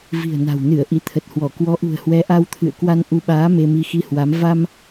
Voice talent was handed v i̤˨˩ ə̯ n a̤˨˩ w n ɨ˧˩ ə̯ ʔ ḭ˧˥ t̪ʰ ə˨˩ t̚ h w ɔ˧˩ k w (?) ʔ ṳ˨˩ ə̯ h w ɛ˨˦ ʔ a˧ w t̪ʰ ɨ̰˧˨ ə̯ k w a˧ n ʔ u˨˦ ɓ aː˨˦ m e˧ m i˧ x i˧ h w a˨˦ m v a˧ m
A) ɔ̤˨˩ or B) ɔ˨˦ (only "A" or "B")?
B